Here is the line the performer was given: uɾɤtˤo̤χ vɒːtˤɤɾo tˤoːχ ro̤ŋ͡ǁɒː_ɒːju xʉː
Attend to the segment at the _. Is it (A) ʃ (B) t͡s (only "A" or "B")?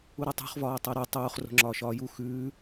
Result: A